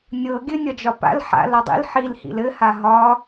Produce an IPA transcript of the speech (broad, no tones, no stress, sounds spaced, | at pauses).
nʲ ɤ ɡʲ ɘ nʲ ɒ d͡ʒ ɒ p a̰ l ħ a̰ l ɒ dˤ ḭ l ħ i l h ḭ l ɘ h a ɦ ɒ